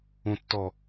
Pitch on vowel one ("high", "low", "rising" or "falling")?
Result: low